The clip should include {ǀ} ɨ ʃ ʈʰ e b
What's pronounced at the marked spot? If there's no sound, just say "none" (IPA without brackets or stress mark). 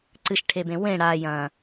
ǀ